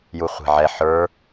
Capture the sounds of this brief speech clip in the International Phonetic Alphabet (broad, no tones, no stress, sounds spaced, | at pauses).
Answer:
j u χʷ e̤ ʕ ɛ ħ ə˞